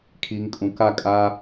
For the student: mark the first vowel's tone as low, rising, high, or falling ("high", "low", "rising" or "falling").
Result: low